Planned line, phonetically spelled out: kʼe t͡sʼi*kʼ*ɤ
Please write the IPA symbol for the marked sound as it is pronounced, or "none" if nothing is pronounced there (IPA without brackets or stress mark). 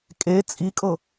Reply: kʼ